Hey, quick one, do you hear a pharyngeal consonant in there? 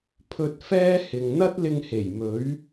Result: no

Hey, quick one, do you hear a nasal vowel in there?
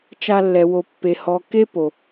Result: no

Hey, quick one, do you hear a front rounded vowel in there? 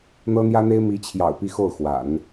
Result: no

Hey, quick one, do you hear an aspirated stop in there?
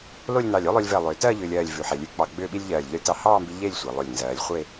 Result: no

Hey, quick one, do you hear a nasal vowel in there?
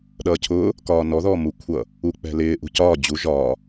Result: no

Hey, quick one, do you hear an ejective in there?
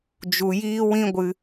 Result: no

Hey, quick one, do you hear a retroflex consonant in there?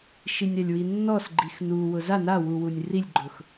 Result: no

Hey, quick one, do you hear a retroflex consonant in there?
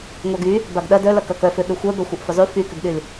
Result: no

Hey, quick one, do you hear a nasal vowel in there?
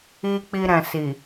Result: yes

